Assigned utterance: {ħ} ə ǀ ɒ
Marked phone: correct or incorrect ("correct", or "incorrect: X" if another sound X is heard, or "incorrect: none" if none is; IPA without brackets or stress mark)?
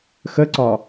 incorrect: x